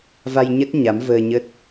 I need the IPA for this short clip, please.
va˧jɲə˦˥t̚ ɲa˨˦mvəː˧ɲə˦˥t̚

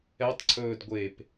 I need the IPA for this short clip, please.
ɛtˤǀʰɵːd ɡʷep

